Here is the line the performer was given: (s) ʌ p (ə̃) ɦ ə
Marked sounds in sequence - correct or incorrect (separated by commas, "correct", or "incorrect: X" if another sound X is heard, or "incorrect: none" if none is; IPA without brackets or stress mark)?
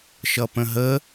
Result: incorrect: ʃ, correct